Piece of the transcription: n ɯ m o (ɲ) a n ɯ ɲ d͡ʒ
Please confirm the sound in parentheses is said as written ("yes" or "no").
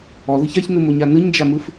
yes